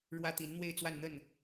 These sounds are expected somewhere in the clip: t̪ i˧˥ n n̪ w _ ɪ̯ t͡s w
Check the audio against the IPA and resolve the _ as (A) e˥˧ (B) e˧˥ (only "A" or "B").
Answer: A